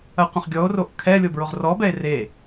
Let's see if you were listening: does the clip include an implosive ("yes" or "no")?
no